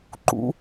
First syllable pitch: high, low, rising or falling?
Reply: high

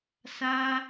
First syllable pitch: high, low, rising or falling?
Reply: high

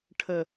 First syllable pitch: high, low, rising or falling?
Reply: low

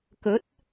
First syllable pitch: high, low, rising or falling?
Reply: rising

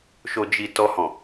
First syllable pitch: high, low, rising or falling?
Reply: low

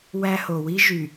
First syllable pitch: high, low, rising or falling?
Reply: high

